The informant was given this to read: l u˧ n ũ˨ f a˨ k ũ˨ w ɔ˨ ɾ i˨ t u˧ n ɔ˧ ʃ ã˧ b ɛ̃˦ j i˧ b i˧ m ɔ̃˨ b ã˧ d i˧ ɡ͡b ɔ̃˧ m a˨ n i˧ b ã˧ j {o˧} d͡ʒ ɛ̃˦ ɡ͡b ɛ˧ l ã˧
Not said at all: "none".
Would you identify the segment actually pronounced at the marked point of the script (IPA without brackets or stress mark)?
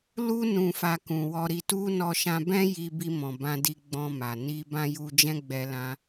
u˧